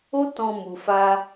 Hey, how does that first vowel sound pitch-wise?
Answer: high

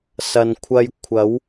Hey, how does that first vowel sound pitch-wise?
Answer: low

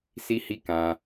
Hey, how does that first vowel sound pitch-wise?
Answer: high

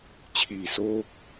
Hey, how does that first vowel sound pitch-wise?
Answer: low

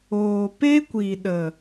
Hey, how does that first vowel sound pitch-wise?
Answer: low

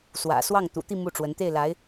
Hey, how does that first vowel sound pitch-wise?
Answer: low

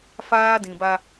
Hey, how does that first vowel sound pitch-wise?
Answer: high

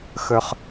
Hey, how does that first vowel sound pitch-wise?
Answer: high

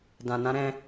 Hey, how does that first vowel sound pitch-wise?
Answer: low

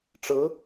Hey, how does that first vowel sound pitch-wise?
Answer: rising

